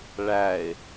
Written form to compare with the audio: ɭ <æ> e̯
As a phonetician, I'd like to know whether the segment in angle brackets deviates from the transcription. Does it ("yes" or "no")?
no